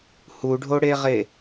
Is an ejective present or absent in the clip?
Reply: absent